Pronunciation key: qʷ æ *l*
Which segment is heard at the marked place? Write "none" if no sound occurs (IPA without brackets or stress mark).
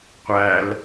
l